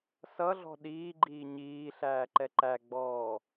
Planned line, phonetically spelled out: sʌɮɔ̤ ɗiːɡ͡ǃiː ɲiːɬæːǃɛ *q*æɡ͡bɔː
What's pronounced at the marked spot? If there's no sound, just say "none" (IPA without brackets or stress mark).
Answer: ǃ